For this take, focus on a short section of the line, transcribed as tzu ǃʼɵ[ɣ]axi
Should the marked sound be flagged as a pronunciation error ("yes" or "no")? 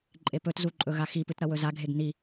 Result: no